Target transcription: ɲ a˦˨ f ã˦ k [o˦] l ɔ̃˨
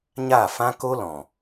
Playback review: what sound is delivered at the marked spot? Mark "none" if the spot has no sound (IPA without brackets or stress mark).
o˦